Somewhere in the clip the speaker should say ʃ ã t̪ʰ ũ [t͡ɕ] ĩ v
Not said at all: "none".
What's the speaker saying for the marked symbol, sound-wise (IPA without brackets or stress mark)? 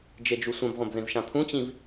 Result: t͡ɕ